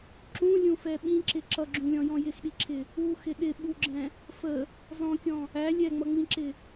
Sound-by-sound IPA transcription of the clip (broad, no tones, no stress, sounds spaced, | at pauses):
ǁ ũ lʲ ũ f ɛ ɓ ĩ ǁ ɪ ǁ ʌ ɡ͡ǁ ũ lʲ ɔ̃ j ɔ̃ j ɪ x ɗ i ǁʰ ɪ | u x ɪ ɗ ɪ ɓ u ɡ͡ǁ ɛ̃ | f ə | z ɔ̃ kʲ ɔ̃ | æ lʲ ɛ ŋ͡m ʌ ŋ͡m ĩ ǁ ɪ